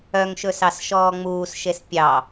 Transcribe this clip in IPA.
œ ŋ ʃ ɵ s ɑ s ʃ ɔː ŋ͡m uː s ʃ e s pʲ ɑ

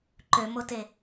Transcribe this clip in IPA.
ǃ ø m o t e

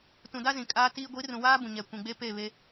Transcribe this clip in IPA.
t ũ˨ d a˦ z ĩ˨ kʼ aː˦ t iː˦ ɡʷ i˨˦ r ũ˨ w aː˦ b ũ˨ ɲ ɛ˨ kʷ ĩ˨ ɡ͡b e˦ p e˦˨ β e˦

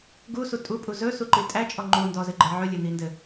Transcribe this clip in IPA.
ɡ u s u tʼ u pʼ u z ɵ s u ǃ i tʼ æ t͡ʃʼ ɔ ŋ͡ǃ u n d ɔ z ɘ ɡ͡ǃ ɘ ʕ ɵ lʲ ɘ n̪ i n d ɘ

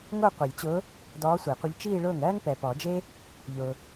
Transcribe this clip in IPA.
ŋ o˥˧ qʷ i˨˩˦ lʲ t͡ɕ ʊː˧˥ | d ɔː˧˥ sʷ e˨˩˦ qʷ ə˧˥ ʎ t͡ʃ iː˥˧ ɭ ʊː˥˩ ŋ ɜː˥ ŋ p ɛ˨ p ɔ˨˩˦ d͡ʒ e˥ | ʎ ʊː˨

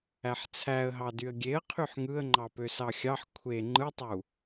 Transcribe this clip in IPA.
æ ħ t͡sʰ æ ə̯ ɦ ɑ d y ə̯ ɡʲ e ə̯ qʰ y ħ ŋ ɯ ə̯ ŋ͡ǃ ɑ p ø s ɑ xʲ ɑ ħ kʷʰ e ŋ͡ǃ ɯ tˤ u

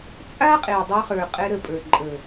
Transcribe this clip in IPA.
t͡sʼ a˦ qʼ e˨ dˤ œ˧ χ ə˞˨ qʼ ɛ˧ ɾ ə˨ pʼ ə˞˨ ǃʼ əː˨

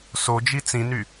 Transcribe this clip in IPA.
s o d͡ʒ i t͡s ĩ n y

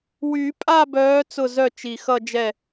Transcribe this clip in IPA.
w y˨˩˦ pʼ a˥˧ b œː˨˦ t͡s ʊ˥˩ z œ˥˩ t͡ʃ i˨˩ x ʌ˥˧ d͡ʒ ɛ˥˩

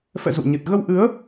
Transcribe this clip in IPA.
f ɛ̰˧˨ z ṵ˧˨ ɲ ɨ˨˩ t̚ ɣ ə˧ w ʔ ɨ˨˦ ə̯

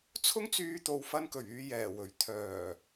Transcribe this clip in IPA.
t͡sʰ ʊ˥ ŋ t͡s yː˧ t̪ o˨ w f ɐ˧ n k ɵ˨˩ ɥ yː˨ j ɛː˨˩ w ɵ˨˩ ɥ t̪ʰ œː˨˩

